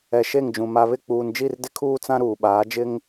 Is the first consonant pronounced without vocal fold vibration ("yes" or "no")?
yes